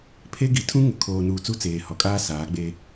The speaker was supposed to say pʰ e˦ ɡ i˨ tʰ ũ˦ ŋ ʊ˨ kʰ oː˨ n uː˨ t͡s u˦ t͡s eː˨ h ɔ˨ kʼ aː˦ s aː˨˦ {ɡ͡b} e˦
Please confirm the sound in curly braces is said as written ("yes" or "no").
yes